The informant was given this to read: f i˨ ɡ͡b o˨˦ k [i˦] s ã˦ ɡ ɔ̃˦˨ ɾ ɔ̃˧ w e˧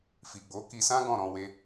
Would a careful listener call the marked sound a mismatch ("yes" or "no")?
yes